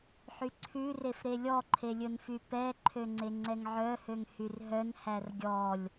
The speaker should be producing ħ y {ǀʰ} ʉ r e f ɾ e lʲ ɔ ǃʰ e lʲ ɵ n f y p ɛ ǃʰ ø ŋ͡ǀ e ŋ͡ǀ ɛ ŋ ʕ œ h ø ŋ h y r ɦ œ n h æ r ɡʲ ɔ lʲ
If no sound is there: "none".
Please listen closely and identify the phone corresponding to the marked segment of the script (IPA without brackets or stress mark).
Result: ǀʰ